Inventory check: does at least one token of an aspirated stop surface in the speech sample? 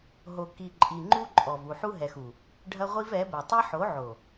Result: no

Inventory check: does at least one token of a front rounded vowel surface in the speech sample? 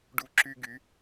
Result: yes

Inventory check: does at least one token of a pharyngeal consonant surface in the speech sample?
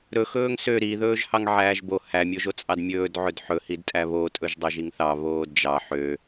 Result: yes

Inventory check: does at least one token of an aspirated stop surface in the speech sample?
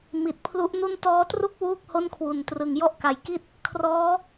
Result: yes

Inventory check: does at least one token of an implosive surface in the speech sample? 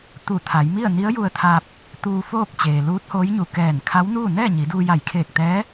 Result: no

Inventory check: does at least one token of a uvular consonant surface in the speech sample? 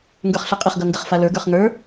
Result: yes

